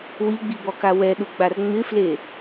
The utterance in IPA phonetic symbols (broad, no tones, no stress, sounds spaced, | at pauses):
w i ɡ͡b i b ɔ k a w ɛ ɗ u ɡ͡b a r ŋ͡m ɪ f l e